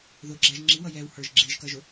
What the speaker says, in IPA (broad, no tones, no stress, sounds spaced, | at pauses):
ð ʊ ɡ͡ǁ æ ʒ ŋ͡ǁ i w ʌ j ɛ w h ə˞ ʒ ɡ͡ǁ i ʒ k ʌ ʒ ʊ